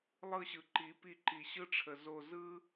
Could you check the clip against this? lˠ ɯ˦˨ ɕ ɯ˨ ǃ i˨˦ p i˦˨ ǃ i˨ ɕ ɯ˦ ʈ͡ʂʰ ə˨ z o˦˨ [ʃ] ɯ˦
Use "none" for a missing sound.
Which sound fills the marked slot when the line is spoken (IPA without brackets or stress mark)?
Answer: z